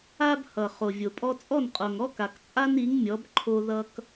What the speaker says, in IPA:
a˥ b h ʌ˩ χ o˩ vʲ o˩ pʼ ɔ˧ t͡sʼ ɔ˥˩ n qʼ o˩ ŋ ɔ˥ k a˩ k t͡sʼ a˥ n i˩˥ ŋ mʲ ɔ˩˥ b ǃʰ o˧ ð ʌ˧ k

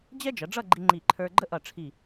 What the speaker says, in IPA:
d͡ʑ ɛ˥ d͡ʒ ʌ˩˧ ɖ͡ʐ ʌ˥˧ ɡ͡ǃ i˧ ŋ͡ǃ i˧˩ ǃʰ ə˞˧ ɡ͡ǃ ə˥ ʔ ʌ˧˩ ʈ͡ʂʰ i˧˩

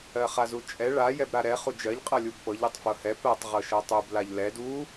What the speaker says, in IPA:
ɜ χ a z u t͡ʃʼ ɛ ɭ a j ɛ b ɾ a ɾ ɛ χ u d͡ʒ ɜ ʎ qʼ ɤ lʲ u b p ɤ ʎ ɛ tˤ f ɤ h ɛ p ɜ tˤ ʁ ɤ ʃ ɤ tˤ u b l a ʎ l ɛ d u

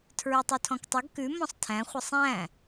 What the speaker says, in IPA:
tʰ ɹ y tˤ o tʰ ɔ̃ k tˤ ə ɡ k ʉ m ɔ̃ sˤ tʰ æ̃ χʷ ə sˤ æ̃

